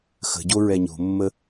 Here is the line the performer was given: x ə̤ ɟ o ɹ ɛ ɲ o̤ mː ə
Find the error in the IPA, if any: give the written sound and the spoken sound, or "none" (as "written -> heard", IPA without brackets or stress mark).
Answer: none